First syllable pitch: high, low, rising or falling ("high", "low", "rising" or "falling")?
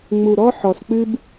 low